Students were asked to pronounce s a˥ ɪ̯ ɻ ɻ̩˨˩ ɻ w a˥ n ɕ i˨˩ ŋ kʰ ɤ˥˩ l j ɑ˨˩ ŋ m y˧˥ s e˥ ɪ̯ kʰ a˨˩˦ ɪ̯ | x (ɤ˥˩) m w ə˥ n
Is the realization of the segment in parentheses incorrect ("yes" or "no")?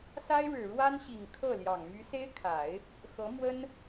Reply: yes